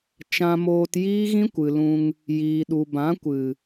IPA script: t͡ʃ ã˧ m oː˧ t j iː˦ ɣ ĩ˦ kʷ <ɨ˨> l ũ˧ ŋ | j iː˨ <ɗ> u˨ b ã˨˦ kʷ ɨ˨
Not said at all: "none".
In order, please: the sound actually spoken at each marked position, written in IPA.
ɨ˨, ɗ

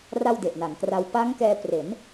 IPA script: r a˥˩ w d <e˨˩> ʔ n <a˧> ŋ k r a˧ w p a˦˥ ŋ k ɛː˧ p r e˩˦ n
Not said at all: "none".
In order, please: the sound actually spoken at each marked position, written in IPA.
e˨˩, a˩˦

